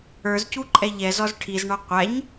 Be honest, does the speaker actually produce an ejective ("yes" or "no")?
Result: yes